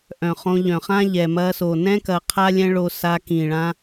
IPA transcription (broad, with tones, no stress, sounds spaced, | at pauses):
ʔ œ̃˨ χ õ˧ ʎ œ̃˨ χ ã˦ ʎ ɛ˨ m ɐ˧ s o˨ n ɛ̃˦ k ɐ˧ qʰ a˦ lʲ ɛ̃˦ ɭ o˧ s a˧ k ĩ˨ ɭ ã˧